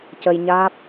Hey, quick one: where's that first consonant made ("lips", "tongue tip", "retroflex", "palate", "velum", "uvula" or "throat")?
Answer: palate